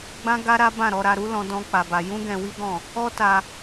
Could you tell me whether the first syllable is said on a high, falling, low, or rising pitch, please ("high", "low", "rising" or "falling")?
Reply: high